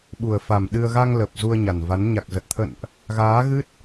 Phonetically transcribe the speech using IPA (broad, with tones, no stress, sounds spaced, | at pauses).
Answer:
ɓ u˨˩ ə̯ f a˨˩ m ɗ ɨ˧ ə̯ ɣ a˧ ŋ l ə˨˩ p̚ z u˧ ə̯ ɲ a˨˩ n v a˨˦ n ɲ a˨˩ k̚ z ə˨˩ t̚ t̪ʰ ə̰˧˨ n ʔ | ɣ aː˨˦ ɣ ɨ˦˥ t̚